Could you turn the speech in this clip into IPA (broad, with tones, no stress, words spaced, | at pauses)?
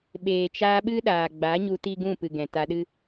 ɓeː˨t͡ʃaː˧ ɓɨ˦ɗaː˨ɡ͡ba˨˦ɲu˧ ti˦ɡũ˦˨pɨ˨ ɡɛ̃˨ta˧ɗɨ˦